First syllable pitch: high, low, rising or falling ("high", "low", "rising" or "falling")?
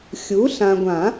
rising